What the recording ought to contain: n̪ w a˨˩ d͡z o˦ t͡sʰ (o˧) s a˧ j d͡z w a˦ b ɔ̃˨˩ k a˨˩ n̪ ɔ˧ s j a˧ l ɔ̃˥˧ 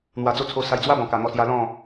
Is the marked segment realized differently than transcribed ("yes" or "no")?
no